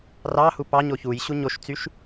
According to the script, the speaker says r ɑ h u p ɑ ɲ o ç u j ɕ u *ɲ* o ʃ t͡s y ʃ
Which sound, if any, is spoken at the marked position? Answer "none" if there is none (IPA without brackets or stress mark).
ɲ